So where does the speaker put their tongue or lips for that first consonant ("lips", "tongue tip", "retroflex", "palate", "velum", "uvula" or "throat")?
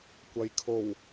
velum